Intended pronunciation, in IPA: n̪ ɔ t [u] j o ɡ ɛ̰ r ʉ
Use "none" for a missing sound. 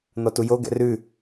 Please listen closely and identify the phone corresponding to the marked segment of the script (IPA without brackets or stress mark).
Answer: u